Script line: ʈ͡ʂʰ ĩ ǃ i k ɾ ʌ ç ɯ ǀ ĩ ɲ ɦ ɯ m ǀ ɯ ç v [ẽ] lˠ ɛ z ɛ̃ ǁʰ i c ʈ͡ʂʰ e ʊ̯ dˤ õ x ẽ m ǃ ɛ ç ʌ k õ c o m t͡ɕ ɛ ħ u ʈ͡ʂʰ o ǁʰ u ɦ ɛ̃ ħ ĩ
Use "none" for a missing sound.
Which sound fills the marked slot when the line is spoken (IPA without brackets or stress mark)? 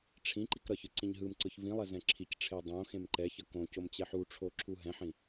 ĩ